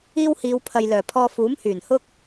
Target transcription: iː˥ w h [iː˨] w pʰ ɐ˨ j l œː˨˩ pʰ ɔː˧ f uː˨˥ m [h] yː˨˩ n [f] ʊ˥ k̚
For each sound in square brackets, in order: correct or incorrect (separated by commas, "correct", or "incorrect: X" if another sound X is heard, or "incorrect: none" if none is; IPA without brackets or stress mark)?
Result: incorrect: iː˨˧, correct, incorrect: h